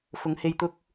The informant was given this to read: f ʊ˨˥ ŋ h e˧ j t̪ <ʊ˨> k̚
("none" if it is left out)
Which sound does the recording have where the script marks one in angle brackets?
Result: ʊ˥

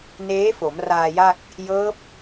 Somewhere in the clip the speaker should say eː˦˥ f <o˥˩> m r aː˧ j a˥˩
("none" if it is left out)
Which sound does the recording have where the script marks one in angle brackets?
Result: o˩˦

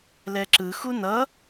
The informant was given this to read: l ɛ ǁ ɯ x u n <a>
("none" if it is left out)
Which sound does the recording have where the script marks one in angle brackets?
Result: ʌ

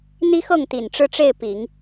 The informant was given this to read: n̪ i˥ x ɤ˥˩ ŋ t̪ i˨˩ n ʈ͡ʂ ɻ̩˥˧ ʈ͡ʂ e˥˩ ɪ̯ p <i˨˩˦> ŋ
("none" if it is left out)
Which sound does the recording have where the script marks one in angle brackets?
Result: i˨˩˦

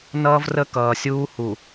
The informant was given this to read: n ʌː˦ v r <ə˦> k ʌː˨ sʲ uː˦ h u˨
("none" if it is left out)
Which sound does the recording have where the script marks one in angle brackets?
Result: ə˦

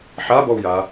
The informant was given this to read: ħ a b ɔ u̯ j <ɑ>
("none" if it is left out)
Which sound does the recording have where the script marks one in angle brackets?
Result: a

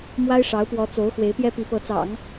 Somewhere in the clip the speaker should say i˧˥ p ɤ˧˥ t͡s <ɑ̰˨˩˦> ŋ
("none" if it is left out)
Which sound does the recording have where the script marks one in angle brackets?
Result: ɑ̰˨˩˦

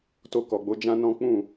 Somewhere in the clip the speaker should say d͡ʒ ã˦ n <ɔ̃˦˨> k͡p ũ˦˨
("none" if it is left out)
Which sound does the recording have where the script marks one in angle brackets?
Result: ɔ̃˦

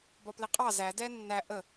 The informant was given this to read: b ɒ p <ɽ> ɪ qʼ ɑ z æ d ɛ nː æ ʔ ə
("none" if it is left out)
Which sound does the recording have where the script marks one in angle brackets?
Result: l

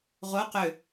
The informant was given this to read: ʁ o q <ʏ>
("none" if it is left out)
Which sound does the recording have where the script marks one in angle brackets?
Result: ʏ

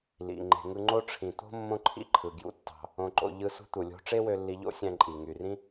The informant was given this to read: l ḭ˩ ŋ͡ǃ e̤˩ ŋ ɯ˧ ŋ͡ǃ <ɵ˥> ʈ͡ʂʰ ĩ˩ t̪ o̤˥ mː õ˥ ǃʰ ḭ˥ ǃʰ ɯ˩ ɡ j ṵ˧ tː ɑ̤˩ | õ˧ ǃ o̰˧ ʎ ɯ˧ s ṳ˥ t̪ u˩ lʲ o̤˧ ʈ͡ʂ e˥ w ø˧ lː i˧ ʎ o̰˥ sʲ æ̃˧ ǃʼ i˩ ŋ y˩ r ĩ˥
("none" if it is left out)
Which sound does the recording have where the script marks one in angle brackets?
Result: o˥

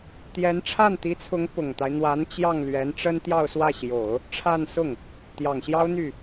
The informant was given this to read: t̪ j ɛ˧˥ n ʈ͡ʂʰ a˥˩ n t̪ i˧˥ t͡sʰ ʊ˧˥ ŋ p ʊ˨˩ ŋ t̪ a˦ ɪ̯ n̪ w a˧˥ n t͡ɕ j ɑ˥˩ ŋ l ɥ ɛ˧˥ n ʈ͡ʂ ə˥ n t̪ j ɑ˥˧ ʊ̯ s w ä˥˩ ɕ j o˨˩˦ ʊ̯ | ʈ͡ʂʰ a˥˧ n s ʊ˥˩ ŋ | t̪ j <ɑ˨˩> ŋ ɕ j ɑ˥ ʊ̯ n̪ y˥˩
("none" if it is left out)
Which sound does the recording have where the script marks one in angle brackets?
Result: ɑ˨˩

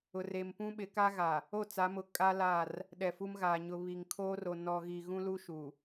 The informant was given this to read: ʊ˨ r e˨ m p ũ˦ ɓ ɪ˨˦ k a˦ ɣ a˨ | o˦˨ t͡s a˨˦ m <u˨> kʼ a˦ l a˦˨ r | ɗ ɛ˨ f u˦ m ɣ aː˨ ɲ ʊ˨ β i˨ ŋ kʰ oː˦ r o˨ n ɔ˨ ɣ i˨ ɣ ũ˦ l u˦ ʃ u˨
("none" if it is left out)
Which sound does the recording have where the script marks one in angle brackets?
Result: ʊ˨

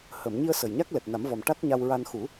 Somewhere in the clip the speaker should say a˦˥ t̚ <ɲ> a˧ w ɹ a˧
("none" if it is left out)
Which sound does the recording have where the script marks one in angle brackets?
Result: ɲ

